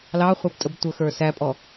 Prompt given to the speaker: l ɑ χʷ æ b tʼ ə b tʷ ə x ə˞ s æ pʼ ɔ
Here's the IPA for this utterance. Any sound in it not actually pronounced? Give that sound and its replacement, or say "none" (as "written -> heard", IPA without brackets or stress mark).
none